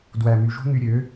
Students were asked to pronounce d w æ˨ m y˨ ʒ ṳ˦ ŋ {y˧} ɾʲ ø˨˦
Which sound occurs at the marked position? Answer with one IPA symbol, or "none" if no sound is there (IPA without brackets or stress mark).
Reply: y˧